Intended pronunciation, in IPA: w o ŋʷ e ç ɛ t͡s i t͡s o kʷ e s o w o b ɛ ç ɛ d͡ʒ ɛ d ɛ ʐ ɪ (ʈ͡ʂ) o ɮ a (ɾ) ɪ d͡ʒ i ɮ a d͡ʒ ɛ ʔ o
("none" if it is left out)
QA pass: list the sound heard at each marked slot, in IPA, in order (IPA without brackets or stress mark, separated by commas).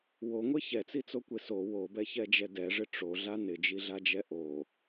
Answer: ʈ͡ʂ, n